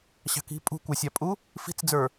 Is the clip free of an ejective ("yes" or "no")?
no